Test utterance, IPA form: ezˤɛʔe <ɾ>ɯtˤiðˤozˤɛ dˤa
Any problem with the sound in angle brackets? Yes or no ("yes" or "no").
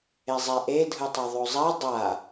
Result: yes